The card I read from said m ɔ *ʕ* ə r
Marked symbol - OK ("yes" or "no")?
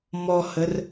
no